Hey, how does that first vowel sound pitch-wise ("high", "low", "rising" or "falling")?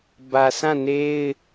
low